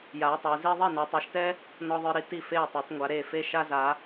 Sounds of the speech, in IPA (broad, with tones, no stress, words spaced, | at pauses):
ja˨˦ɪ̯tˤe˨˦ zi˥ ðˤi˥˩na˨˦tˤɛ˨˦ʃtɛ˥ | nɔ˥ðˤə˞˥ɾi˥ ti˥˩ fe˥˩jtˤə˞˨˦tˤŋʷa˨˦ ɾe˥˩fe˥ ʃa˥za˨˦